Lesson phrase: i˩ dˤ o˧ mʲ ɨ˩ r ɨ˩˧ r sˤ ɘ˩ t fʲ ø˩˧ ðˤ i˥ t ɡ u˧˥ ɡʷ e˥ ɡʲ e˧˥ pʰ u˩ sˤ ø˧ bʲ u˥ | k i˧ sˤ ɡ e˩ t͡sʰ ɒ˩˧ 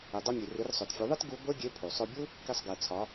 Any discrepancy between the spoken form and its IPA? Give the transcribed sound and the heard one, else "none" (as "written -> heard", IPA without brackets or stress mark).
ɘ˩ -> ø˩